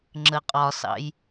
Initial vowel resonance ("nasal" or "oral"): oral